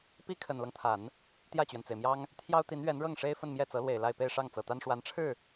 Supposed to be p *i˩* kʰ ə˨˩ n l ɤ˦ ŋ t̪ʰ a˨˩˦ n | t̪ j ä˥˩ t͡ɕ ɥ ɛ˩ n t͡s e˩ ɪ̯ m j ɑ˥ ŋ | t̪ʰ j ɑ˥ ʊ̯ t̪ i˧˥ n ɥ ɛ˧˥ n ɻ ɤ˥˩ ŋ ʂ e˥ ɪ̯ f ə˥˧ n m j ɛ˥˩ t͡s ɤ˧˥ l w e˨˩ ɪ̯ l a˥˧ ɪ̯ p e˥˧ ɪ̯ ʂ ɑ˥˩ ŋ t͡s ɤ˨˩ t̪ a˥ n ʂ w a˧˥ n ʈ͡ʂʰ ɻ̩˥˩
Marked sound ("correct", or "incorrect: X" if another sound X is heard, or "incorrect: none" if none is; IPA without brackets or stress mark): incorrect: i˥